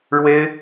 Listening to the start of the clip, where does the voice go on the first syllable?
high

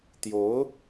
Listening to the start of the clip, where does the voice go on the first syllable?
rising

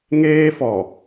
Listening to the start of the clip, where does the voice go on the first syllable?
high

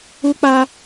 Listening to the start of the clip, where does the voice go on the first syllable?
high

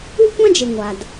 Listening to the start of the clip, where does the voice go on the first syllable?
high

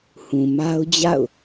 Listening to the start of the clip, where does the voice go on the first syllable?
low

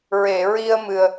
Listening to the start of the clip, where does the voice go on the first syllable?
low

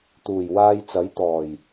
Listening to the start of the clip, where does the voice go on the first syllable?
low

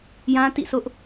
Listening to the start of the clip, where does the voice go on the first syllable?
high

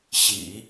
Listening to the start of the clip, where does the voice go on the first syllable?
low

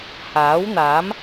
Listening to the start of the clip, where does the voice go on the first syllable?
rising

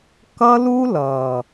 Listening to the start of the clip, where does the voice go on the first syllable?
high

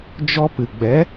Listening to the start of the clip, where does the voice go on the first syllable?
high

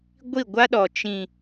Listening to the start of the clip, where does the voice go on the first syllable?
falling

